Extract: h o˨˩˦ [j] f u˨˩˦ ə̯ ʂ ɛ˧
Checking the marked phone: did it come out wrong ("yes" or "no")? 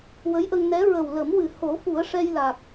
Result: yes